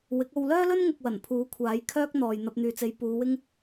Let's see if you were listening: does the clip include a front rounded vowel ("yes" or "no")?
yes